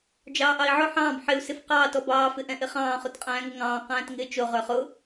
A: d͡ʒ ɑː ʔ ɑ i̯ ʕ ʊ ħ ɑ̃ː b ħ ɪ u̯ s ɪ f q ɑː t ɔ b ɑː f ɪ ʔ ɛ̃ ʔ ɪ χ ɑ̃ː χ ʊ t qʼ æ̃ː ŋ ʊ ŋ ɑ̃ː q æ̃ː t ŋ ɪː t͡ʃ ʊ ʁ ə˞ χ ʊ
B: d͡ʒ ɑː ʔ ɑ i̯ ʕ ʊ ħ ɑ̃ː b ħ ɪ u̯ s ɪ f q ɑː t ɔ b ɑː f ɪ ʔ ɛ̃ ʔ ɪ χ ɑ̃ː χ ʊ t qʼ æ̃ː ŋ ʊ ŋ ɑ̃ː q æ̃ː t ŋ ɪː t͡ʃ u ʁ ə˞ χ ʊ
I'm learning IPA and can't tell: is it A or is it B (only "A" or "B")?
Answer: A